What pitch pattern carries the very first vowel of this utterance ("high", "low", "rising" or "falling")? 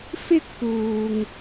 high